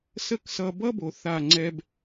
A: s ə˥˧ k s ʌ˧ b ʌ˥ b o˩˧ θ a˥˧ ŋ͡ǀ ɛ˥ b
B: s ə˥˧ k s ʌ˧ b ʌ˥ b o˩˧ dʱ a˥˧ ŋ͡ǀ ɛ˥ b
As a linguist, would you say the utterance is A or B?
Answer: A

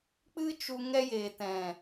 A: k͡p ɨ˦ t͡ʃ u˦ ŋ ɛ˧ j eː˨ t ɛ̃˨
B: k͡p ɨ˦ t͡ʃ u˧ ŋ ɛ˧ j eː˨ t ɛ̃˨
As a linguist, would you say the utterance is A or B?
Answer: B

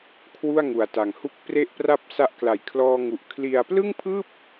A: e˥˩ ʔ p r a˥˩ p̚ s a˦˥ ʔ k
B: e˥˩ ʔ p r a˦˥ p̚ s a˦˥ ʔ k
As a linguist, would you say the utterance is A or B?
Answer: A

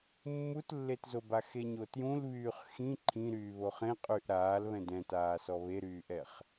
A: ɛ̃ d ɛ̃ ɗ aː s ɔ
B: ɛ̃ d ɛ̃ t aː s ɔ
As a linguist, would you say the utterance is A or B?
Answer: B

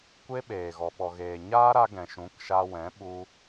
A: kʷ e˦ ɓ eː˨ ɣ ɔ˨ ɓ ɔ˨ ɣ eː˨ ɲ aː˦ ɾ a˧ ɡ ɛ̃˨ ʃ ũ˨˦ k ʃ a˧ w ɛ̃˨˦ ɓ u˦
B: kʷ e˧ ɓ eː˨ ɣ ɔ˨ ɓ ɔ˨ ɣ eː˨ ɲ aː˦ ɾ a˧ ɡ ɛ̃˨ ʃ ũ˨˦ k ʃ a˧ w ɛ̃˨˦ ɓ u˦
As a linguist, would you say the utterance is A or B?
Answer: A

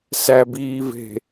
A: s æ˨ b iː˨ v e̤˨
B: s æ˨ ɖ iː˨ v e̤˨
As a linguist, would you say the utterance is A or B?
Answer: A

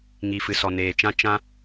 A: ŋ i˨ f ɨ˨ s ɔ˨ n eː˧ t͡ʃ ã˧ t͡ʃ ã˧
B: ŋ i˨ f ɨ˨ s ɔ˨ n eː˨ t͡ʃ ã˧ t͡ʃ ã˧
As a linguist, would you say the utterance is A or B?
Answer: B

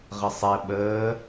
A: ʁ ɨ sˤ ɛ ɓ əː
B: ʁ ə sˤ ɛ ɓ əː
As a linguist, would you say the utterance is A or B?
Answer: B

